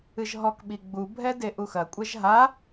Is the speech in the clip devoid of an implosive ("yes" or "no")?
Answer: no